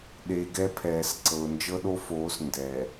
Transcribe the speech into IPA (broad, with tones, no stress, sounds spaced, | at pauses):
ɗ e˨ ɡ ɛ˦ pʰ ɛː˨ s ǀ ɤ˨ ʊ̯ n d͡ʒ ɤ˦ ɗ o˦ f oː˨˦ s n d ɛ˨